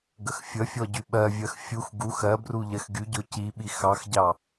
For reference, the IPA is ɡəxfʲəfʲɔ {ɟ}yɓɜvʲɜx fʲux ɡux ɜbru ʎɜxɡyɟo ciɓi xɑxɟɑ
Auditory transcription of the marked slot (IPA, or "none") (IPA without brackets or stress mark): ɟ